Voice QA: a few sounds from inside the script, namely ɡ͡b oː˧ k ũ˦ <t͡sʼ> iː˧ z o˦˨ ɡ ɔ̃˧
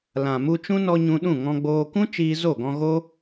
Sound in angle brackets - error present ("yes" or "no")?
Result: yes